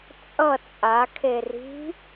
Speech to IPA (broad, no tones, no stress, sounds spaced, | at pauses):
t͡sʼ ʌ t͡sʼ a kʰ e r i̤